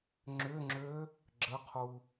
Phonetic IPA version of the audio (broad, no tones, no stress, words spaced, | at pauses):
ŋ͡ǁʏŋ͡ǁø | ɡ͡ǁəqʰu